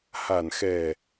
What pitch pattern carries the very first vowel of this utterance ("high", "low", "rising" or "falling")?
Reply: low